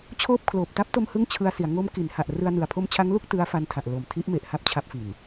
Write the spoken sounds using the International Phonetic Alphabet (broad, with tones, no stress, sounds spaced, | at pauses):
t͡ɕʰ oː˥˩ p̚ kʰ l oː˨˩ p̚ t a˦˥ p̚ t o˧ m h ɯ˥˩ ŋ t͡ɕʰ ɯ˧ a̯ s i˩˦ a̯ ŋ o˦˥ m k i˩˦ n h a˨˩ ʔ r ɯ˧ a̯ n ɯ˨˩ a̯ pʰ o˦˥ m t͡ɕʰ a˦˥ ŋ l u˥˩ k̚ t ɯ˦˥ a̯ f a˧ n tʰ a˨˩ ʔ l o˨˩ m tʰ i˦˥ ʔ m e˨˩ ʔ h a˥˩ p̚ t͡ɕʰ a˦˥ p̚ f i˨˩ n